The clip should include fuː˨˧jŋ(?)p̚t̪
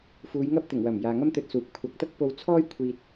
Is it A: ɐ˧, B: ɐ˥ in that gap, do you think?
B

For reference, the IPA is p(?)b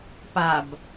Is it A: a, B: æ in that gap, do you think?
A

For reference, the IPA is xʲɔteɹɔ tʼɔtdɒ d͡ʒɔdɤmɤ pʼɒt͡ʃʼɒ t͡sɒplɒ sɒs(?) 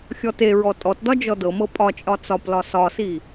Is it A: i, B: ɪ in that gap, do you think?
A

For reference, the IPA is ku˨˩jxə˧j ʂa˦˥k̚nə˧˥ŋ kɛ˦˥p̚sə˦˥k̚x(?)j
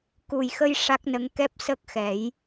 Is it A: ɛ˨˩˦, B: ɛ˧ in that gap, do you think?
A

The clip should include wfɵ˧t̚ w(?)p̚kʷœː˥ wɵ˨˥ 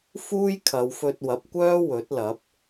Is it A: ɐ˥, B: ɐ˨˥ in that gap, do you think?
B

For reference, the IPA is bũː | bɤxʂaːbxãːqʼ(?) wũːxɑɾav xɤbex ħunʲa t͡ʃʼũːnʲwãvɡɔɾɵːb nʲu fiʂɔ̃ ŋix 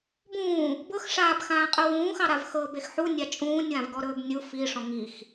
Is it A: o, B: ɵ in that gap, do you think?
B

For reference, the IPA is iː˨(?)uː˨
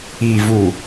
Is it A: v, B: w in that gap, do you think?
A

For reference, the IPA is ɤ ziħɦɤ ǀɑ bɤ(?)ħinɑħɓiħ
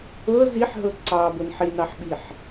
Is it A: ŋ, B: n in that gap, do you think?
B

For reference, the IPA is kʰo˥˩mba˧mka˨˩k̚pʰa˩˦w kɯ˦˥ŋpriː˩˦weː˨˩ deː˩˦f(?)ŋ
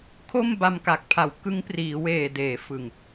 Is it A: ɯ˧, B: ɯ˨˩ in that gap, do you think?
B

